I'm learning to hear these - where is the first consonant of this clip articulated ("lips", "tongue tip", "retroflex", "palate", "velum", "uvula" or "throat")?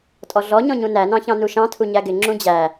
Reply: tongue tip